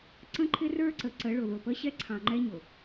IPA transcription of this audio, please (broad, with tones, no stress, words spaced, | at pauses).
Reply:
ǀə̃˦ǃʰɪ˦ rə˞˦ǀə˨ ǀə˨˦ɭʊ˨ðʊ˨pə˦ ɕɛ˦ǀʰɑ̃˨ŋ͡ǃɛ˦ɲʊ˨